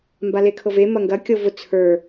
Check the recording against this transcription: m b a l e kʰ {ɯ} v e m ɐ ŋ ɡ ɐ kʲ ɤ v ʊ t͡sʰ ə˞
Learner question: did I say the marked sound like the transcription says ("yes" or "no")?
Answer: no